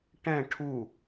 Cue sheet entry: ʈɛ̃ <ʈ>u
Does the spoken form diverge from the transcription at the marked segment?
yes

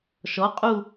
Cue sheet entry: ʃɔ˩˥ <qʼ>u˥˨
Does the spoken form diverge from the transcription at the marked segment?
no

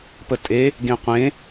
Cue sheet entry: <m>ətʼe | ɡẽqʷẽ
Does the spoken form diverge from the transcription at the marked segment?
yes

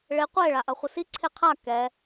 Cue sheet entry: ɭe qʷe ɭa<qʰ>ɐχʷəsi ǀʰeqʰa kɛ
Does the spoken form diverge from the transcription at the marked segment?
yes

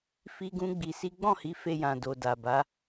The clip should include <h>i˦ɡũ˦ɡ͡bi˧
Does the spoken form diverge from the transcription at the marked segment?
yes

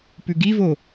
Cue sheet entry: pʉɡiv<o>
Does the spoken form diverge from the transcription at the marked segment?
no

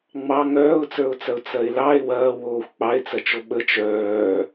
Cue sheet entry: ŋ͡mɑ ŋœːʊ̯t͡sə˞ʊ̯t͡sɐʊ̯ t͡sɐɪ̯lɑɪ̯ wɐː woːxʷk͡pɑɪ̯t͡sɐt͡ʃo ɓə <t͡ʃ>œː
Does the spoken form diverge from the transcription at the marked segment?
no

